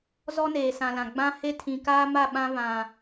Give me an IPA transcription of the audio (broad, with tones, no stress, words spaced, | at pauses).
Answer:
zɔ˦neː˨sã˨lã˨ ɡ͡bã˦he˦ tʰĩ˨kaː˦ma˦˨ ɓã˦ βã˨